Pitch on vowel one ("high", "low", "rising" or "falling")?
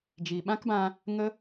low